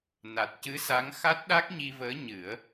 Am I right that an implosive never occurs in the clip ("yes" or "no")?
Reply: no